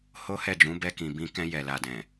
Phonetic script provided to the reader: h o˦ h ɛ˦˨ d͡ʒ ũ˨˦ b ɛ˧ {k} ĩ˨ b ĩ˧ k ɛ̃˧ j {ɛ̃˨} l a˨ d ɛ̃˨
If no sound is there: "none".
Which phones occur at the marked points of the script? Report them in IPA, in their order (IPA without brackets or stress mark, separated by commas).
k, ɛ˨